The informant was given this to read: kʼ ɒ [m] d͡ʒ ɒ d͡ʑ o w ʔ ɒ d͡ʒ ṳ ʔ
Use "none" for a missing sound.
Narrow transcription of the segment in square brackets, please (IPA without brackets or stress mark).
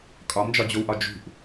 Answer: m